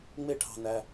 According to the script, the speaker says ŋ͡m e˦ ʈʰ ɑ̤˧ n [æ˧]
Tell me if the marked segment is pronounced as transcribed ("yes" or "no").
yes